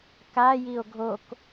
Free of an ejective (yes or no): yes